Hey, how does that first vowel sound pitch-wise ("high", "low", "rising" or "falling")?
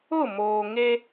falling